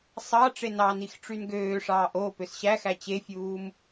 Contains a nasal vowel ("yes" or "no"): no